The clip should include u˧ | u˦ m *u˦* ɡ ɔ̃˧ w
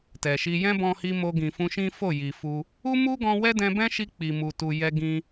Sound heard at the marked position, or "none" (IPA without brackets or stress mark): u˦